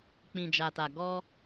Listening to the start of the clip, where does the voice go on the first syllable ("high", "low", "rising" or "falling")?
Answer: low